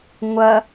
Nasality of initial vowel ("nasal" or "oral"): oral